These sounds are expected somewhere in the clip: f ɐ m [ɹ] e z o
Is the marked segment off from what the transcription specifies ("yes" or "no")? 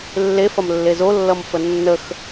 yes